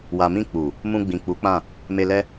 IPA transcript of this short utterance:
w a˨ m ĩ˧ k͡p u˨ | m ũ˧ ɡ͡b ĩ˨ k͡p u˨˦ k͡p ã˦˨ | m e˧ l ɛ˦

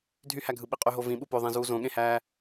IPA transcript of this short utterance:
dʱ y h æ ɡʱ ɯ ɓ i qʼ y ɦ o v ĩ ɓ u p ø ðˤ ẽ z uː z õ ɠ ẽ h æː

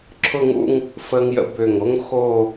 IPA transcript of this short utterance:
ǁʰ ʊ˥˧ ŋ ṵ˥˧ ŋ | f əː˧ ŋ j ə̰˧ b ʏː˧˩ ŋ o˥ ŋ x o˥˧

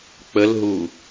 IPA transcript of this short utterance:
k͡p ə l ɦ u

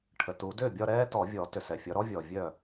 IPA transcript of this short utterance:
ʈʰ ə˩ t u˨˩˦ d ʏː˥˩ bʲ ɒ˥˧ ɾ ɛː˥ t ɔ˨˩˦ vʲ ɔ˨˩˦ t ʏ˩ s ɛ˩ fʲ ɒ˨˦ ɾ ɔ˥ vʲ ɔː˩ vʲ œ˥˩

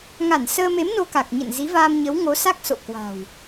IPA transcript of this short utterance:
ŋ a˧˩ n s əː˧ m e˨˦ m n o˧ k a˨˩ k̚ ɲ ə̰˧˨ n z i˨˦ v aː˧ m ɲ ə˨˦ w ŋ o˨˦ s a˦˥ k̚ s o̰˧˨ k w a̤˨˩ w

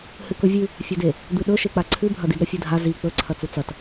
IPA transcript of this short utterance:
h ɨ k ɵ vʲ ʉ | fʲ ɵ d e | d̪ ɨ ɗ ɵ ʃ e k͡p a ǀʰ ʉ bʱ ɐ d i d ɾ ɐ fʲ ɨ dʱ a z i k͡p ɵ ǀʰ ɐ t͡s u t͡s ɐ t

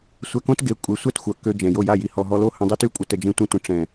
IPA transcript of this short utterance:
sʷ ɛ˧ k õ˦ t ɡ e˨˦ kʷʼ e˨˦ sʷ ɛ˦˨ t xʷ œ˨ k ø˧ d͡ʒ ɛ̃˨ j o˦˨ j a˦˨ j i˨ h ɔ˨ ɦ ɔ˧ l o˦ h ə̃˧ dˤ i˦ t y˦˨ kʷʼ ə˧ t ə˨ d͡ʒ ẽ˧ tʷ ẽ˧ tʷ ə̃˨ ʈ͡ʂ ɛ̃˨

